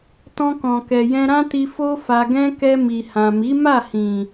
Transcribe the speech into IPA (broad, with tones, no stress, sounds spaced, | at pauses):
t ɔ̃˧ k ɔ̃˨ k ɛ˨ j ɛ̃˧ ɾ ã˦ t i˧ f o˦ f a˧ ɡ ɛ̃˦ k ɛ˧ m i˨ h ã˨ m i˨˦ m a˦˨ h ĩ˨